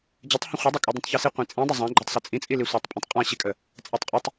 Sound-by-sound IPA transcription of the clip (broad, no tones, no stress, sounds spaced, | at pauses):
d͡ʑ ə tˤ h ə̃ χʷ i dˤ ə kʼ ɯ dˤ ĩ tˤ ç i s i qʷ ĩ t͡sʼ ĩ dˤ ə zˤ ã ɡ͡ǃ a tˤ s ə t͡sʼ ĩ t͡sʼ i l i sʷ a tˤ pʼ ə̃ tˤ qʼ ã ɕ i kʼ ə | t͡sʼ a tˤ qʼ i tˤ